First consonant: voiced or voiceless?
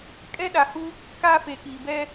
voiceless